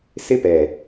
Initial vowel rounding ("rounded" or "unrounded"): unrounded